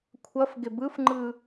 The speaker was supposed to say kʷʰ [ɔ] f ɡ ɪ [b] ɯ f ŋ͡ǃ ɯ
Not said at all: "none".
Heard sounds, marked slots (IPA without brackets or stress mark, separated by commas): ʌ, b